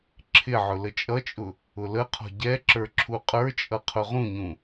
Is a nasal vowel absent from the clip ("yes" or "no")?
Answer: no